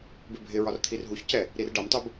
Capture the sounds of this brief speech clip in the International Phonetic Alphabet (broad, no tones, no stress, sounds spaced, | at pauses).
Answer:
b ɪ bʱ ɪ ɹ ɒ r t̪ʰ i r ɦ u ç c ɛ | ɾ i r ɖ ʌ m tˤ u b